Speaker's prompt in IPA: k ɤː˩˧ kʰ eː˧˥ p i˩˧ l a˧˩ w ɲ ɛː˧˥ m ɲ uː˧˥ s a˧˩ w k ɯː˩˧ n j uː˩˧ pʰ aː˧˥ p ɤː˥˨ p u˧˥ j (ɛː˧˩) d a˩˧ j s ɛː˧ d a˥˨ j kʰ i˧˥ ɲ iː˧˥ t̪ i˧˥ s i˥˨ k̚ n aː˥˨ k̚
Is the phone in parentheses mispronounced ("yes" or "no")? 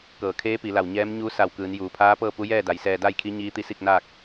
yes